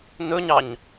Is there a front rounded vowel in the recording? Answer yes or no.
no